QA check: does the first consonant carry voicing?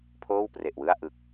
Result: no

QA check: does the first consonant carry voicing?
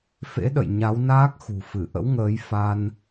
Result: no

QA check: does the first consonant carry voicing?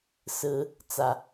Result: no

